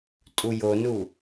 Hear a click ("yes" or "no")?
no